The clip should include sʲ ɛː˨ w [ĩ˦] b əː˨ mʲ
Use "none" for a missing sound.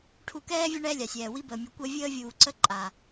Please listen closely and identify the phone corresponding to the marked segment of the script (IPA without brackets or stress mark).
i˦